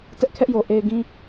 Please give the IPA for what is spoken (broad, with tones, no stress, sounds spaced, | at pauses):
t ɛ˦ ʔ kʰ ɛ˦ ʔ j o˨ ʔ e˨ ɪ̯ ɡ ĩ˦